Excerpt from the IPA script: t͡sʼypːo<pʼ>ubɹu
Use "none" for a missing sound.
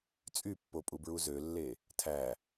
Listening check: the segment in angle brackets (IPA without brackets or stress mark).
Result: pʼ